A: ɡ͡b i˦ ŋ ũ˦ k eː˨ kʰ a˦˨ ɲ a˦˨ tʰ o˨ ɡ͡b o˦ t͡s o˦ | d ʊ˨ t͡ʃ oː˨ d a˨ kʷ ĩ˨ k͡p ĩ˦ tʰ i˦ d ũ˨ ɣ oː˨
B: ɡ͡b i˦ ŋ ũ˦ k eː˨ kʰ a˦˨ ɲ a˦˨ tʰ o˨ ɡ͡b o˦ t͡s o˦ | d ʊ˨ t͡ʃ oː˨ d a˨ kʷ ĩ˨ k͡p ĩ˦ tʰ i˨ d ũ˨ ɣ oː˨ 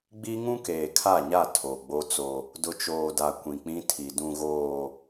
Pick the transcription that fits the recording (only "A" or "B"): B